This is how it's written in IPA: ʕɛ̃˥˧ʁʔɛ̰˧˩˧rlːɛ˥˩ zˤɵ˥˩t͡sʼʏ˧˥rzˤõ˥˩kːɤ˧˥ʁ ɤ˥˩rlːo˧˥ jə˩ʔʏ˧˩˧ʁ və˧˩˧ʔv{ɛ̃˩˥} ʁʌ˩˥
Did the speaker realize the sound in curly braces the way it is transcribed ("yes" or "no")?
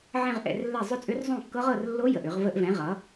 yes